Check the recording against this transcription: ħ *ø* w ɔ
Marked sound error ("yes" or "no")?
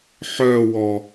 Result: yes